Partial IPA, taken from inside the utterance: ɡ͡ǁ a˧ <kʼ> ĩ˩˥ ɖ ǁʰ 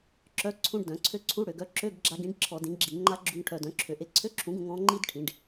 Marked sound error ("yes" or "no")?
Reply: yes